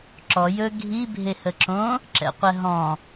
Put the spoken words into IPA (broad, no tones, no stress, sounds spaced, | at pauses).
ǁ ɔ j ɵ ɡʱ i bʱ e h ə ǁ õ | ǁ ɛ̰ qʷ ɛ ɦ ɔ̃